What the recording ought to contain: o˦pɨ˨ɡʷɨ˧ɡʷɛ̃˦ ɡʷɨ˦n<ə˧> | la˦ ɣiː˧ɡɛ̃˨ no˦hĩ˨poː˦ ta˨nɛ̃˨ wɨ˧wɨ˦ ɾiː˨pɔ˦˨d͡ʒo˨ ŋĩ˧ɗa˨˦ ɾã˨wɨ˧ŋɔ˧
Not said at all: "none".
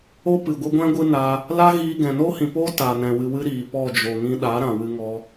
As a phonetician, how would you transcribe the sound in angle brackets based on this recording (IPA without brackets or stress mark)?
a˧